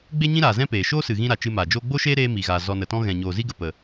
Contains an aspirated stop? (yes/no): no